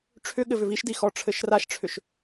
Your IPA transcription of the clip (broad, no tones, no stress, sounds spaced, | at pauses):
ʈ͡ʂʰ ʏ ɠ ɘ v ʏ v i ʃ d i x ɔ ʈ͡ʂʰ ɘ ʃ r a ʃ ʈ͡ʂʰ ʏ ʃ